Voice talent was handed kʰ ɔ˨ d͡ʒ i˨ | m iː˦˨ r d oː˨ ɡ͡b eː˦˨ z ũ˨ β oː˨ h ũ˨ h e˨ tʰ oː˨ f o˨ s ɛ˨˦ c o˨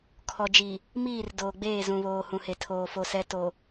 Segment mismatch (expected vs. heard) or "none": c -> t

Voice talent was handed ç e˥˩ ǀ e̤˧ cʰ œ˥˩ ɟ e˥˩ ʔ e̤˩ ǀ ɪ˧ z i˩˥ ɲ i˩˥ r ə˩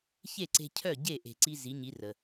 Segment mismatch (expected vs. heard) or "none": ɪ˧ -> i˧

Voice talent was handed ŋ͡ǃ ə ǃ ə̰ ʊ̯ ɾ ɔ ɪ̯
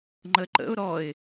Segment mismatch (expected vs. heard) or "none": none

